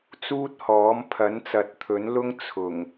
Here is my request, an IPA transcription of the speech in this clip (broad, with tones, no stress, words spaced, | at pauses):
t͡suː˥t̚hɔː˨˥m pʰɐ˨˥nt͡sɐ˨t̚t̪ʰɵ˨˥nlʊ˥ŋ t͡sʰʊ˨˩ŋ